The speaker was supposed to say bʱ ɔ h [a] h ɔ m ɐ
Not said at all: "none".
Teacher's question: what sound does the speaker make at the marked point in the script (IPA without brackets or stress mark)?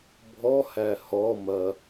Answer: æ